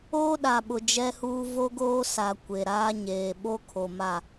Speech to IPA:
oː˦ ɗ a˨ ɓ ʊ˨ d͡ʒ ɛ˦ h uː˦ v o˦ ɡ oː˦ s a˨ kʷ e˨ ɾ aː˦ ɲ eː˨ ɓ o˦ kʰ o˨ m a˦˨

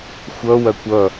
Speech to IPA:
xʷ ʌ w ɐ kʷ ʌ

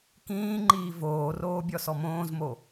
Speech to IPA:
k ĩː ŋ͡ǃ iː v oː r oː bʲ ɔ s ɔ m õː z m o

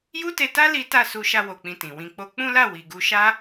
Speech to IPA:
j u˦ t e˧ t a˦ l i˦ t a˦˨ s u˧ ʃ a˧ w o˨ k͡p ĩ˨ t ĩ˨ w ĩ˧ k͡p o˦ k͡p ũ˦ l a˦˨ w i˨ ɡ u˧ ʃ a˦

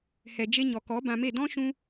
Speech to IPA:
h ɛ˨ d͡ʒ e˧ ɲ ɔ˨ k ɔ˨˦ b ã˧ m e˦˨ d ɔ̃˦ ʃ ũ˦

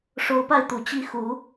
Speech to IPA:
ʂ o˧˥ ʊ̯ p a˥˩ ɪ̯ t̪ u˨˩ t͡ɕ i˥ x u˧˥

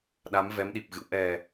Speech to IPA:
ɗ a˨˦ m v ɛ˨˦ m ɗ i˨˩ p̚ ɣ ɨ̰˧˨ w ʔ ɛ˨˩

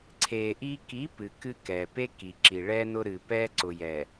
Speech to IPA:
ǀʰ eː˨ ʔ iː˦ k i˨˦ p ɨ˨ k ɨ˦ k ɛː˨ p e˦ k i˨ ǁ i˨ ɭ ɛː˦ n ʊ˦ ɾ ɨː˨ p ɛː˦ ǀ ʊ˨ j ɛ˨

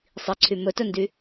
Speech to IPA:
sˤ i ǀʰ y m ɵ t ɵ n d y

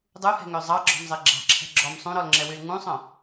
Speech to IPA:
dˤ u h ɛ̤ ŋ ø zˤ ɑ ɡ͡ǁ ɔ̤ m zˤ e ɡ͡ǁ ɑ̤ ǁʰ ɛ̤ ɡ͡ǁ ɔ m sˤ ũ ɾ ɔ l ŋ͡ǁ ɛ w y l ŋ ũ sˤ œ̃

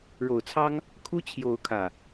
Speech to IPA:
ɻ o˨˩ ʊ̯ t͡sʰ ɑ˦ ŋ | kʰ u˦ t͡ɕʰ j o˨˦ ʊ̯ kʰ ä˨˩

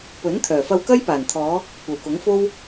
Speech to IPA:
p ɵ˨˥ n t̪ʰ œː˨˩ f ɐ˧ w k ɐ˥ j p aː˨˩ n t̪ʰ ɔː˨˧ | kʷ ɐ˨ w k ʊ˨˥ ŋ f o˥ w

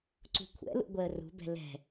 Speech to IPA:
ǀ ṳ kʷʰ ɛ̰ l ṵ ɡʷ ɛ ə̯ r ṳ b ɛ̤ l ɛ̤

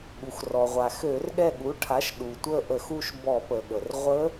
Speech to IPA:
ɠ u˩ x r ɔ˩ ʁʷ a˩ x ø˧˩˧ r ɠ ɛ˦˨ ɠ u˩˥ ʈʰ a˩˥ ʃ ɗ u˩ tʷ ə˦˨ ʔ ə˧˩˧ x u˦˨ ʃ b ɔ˧˩˧ p ə˩ ɠ ə˩ r ʁʷ ə˦˥

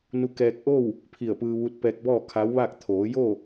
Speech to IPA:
n u˧ k ɛː˧ k̚ ʔ o˥˨ w | pʰ i˧˩ ə̯ p ɯː˧ ʋ u˧˥ t̚ p ɛː˧ k̚ b ɔː˥˨ kʰ a˧˥ w ʋ aː˥˨ k̚ t̪ʰ oː˩˧ j o˥˨

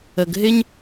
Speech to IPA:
ə˨ ɡ ɦ ɪ˦ ɲ

